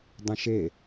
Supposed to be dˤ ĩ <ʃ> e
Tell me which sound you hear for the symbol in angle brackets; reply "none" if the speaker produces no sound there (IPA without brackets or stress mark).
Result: ʃ